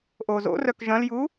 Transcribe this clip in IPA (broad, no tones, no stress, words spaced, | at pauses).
ʔozo̰rœk ʒɐ̃lju